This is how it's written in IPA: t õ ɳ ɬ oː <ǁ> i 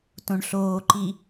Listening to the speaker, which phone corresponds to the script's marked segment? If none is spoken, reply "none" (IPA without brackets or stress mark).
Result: ǃ